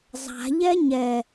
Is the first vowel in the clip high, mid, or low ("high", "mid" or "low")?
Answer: low